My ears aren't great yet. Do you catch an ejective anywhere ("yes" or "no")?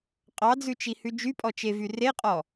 yes